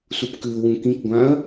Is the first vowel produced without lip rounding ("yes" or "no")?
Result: no